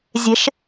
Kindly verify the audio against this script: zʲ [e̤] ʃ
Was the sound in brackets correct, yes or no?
yes